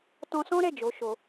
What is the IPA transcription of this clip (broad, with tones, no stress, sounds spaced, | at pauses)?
t ɔ̃˧ s ɔ̃˦ ɾ ɛ˦˨ d͡ʒ o˨˦ ʃ o˧